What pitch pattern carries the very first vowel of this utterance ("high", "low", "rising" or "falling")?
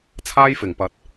high